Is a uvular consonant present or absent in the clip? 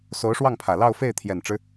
absent